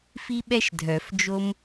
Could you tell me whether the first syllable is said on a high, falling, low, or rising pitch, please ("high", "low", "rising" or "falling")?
high